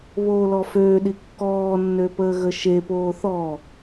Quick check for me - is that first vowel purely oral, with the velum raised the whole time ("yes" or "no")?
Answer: yes